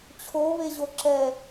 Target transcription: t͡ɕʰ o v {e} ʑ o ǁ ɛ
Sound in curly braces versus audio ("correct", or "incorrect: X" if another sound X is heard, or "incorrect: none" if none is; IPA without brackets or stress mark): correct